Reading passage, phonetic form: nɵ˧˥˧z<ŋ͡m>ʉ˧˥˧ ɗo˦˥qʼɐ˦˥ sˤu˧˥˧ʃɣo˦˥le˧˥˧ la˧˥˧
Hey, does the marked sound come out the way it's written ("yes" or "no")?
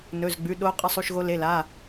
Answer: no